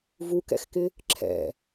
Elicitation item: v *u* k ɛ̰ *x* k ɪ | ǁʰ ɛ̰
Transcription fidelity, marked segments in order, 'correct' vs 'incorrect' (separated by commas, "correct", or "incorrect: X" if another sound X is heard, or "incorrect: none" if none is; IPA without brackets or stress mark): correct, correct